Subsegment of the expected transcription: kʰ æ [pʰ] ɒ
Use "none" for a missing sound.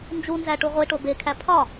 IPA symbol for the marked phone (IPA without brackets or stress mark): pʰ